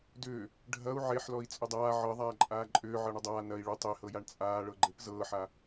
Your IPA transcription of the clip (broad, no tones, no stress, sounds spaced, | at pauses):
d ʏː | ɖʱ ɐ u̯ ʕ e ħ l ɔ i̯ t͡sʼ ʏ dˤ aː ʕ ɤ ðˤ aː ǃʼ aː ǃʼ ʏː ʕ ɤ ɳ ə dˤ aː n ɐ i̯ ɭ ʏ tˤ e h ɤ j a ɳ t͡sʼ aː ɭ ɤ ɡ͡ǃ e p z ɤː ħ a